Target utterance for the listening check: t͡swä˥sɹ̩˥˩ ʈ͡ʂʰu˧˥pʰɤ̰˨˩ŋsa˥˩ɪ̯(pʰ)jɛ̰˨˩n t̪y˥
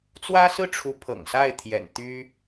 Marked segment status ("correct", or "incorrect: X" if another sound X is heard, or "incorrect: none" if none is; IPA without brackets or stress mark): incorrect: t̪ʰ